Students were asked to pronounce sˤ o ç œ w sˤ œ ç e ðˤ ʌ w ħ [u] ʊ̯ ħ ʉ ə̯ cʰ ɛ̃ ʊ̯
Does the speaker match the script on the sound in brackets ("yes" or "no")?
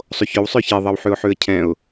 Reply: no